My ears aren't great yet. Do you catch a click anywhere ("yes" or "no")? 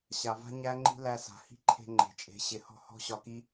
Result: yes